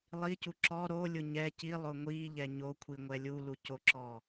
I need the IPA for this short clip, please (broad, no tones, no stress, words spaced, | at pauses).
lˠicu ǁɔ ɾolʲʊ ɲɛ cilˠʊ ŋʷiʎɛ ɲokʷʰiŋʷɛ lʲulucoǁɔ